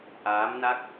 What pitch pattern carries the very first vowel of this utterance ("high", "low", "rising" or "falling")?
rising